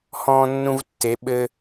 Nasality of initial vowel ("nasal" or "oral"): nasal